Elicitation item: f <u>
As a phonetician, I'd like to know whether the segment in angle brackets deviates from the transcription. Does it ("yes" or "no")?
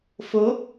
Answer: yes